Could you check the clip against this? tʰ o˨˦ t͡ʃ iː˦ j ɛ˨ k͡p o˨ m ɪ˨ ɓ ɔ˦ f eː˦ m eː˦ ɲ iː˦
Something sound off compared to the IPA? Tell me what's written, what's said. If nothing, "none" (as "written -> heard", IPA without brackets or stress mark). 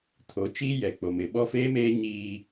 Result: none